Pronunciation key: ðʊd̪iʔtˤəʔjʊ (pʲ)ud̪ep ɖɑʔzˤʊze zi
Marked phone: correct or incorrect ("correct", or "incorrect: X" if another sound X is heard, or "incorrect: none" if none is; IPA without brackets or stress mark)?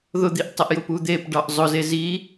incorrect: p